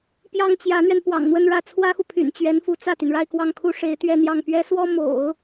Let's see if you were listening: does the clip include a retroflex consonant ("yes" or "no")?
yes